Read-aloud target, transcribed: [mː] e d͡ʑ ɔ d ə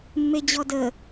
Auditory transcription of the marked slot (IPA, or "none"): mː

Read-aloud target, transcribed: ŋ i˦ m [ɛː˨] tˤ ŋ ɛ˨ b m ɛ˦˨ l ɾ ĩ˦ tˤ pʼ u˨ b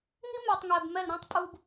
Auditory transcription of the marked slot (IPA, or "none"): ɛ˨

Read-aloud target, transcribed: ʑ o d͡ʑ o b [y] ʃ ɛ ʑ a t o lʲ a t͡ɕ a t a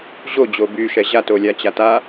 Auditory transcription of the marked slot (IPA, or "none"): y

